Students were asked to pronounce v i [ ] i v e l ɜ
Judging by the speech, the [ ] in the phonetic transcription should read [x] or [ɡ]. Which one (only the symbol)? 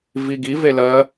ɡ